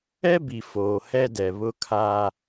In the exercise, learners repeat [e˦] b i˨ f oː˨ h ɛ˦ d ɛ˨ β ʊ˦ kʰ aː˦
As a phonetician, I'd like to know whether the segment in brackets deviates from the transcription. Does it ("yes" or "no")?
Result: yes